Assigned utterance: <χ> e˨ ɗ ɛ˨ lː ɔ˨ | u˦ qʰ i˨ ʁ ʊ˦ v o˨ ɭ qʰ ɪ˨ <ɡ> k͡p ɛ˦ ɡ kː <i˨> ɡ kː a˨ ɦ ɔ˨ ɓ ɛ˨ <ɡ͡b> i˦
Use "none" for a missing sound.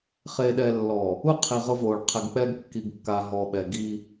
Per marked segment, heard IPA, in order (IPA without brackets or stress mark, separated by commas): χ, ɡ, i˨, ɡ